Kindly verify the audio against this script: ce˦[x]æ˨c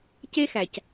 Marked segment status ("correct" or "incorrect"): correct